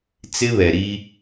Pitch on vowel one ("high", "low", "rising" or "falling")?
high